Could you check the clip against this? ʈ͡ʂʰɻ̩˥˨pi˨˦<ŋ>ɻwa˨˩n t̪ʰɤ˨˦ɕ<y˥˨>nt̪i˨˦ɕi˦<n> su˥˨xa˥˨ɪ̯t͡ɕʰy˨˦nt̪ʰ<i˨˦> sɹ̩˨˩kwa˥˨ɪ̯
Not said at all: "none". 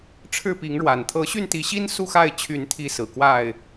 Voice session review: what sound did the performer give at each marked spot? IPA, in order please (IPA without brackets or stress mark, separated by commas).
ŋ, y˥˨, n, i˨˦